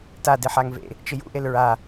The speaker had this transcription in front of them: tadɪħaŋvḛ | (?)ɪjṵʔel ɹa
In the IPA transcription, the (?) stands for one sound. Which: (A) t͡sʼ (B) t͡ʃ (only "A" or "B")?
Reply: B